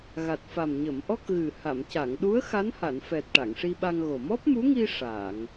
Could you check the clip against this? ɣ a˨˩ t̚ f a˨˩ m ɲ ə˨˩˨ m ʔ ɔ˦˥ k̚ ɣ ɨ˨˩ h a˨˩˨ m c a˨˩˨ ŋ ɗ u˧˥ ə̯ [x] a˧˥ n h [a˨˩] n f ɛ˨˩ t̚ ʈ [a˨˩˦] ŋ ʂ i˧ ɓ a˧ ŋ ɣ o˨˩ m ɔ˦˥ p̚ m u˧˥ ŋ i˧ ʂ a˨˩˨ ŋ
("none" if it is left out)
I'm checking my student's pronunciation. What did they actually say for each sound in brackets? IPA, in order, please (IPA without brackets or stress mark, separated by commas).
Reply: x, a˨˩˨, a˨˩˨